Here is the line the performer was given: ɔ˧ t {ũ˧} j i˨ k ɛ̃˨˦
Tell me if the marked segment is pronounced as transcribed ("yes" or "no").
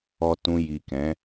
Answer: yes